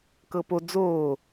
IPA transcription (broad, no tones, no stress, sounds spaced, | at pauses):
k ɤ p o d͡z oː